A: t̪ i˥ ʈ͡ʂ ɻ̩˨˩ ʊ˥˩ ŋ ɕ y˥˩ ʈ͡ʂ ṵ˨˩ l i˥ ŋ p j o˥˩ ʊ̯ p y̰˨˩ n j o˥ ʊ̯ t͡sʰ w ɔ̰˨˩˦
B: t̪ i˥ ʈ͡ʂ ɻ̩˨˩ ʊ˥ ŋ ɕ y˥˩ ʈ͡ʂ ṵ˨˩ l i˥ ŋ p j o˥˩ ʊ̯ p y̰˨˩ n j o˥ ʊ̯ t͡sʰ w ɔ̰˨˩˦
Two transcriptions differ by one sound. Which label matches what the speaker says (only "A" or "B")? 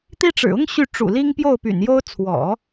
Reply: B